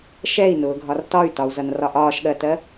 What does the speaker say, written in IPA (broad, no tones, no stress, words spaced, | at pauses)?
ʃɛi̯nʊːɡʱɒr tɒy̯tɒu̯zʌnrɒʔ ɒːʃɠɜtɜ